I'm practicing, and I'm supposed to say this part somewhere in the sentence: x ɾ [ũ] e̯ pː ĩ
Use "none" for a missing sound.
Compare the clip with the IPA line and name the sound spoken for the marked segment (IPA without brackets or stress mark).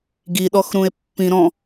ũ